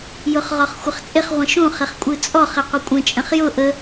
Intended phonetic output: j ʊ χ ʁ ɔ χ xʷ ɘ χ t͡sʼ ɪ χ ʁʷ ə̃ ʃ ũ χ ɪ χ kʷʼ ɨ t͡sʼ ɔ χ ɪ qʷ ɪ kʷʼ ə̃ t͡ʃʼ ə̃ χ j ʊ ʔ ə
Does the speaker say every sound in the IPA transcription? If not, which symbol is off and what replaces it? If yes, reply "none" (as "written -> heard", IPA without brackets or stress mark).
none